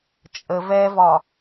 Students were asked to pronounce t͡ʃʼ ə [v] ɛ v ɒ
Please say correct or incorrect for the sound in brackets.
correct